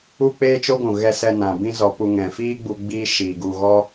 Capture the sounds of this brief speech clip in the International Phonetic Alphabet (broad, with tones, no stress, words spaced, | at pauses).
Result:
u˦k͡peː˦t͡ʃo˦ɡʷũ˨ ɣɛ˧sɛ˧nã˨ bĩ˦zɔ˧pu˧ ŋɛ̃˨ fiː˦ɡ͡bu˧ ɡ͡biː˦ʃiː˨ɡu˧ ɣɔ˦